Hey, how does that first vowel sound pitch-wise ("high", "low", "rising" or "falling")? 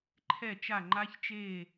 falling